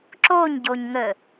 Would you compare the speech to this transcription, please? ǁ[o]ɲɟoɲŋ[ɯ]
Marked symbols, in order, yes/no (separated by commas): yes, no